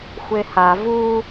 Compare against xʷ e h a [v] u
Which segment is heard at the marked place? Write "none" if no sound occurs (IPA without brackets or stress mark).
v